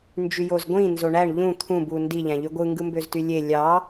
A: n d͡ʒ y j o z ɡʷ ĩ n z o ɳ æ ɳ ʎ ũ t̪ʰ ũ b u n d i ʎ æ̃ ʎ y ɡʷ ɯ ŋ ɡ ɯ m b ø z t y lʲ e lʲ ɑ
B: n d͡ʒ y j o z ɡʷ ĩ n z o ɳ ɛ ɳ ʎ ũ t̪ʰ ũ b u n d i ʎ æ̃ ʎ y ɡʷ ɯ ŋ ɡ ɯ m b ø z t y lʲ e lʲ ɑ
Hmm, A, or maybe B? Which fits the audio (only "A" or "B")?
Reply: A